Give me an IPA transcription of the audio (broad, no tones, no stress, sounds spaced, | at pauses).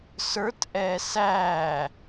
s ə˞ t ʔ ɛː s æː